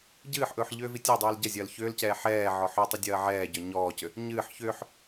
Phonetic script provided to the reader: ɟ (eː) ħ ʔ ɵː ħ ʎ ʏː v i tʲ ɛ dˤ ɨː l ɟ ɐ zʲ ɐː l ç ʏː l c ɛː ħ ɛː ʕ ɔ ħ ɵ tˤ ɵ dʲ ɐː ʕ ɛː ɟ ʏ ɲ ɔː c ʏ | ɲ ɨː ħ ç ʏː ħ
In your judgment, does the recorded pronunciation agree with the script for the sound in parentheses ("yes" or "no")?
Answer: no